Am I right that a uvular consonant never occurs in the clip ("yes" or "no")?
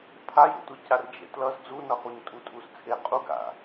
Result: no